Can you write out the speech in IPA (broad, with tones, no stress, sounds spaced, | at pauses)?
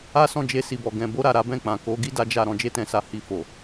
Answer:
a˦ s ɔ̃˦˨ d͡ʒ e˧ s i˨ b ɔ˨ ɡ ɛ̃˧ b o˦ ɾ a˦˨ ɾ a˨˦ b ɛ̃˦˨ k͡p ã˨ k o˨˦ ɡ i˦ d a˦ d͡ʒ a˦˨ ɾ ɔ̃˧ d͡ʒ e˦ t ɛ̃˧ s a˧ h i˧ f o˨